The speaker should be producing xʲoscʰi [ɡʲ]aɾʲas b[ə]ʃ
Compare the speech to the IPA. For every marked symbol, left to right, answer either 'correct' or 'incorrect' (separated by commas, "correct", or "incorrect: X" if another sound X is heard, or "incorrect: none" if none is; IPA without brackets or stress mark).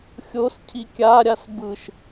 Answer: incorrect: kʲ, incorrect: ɯ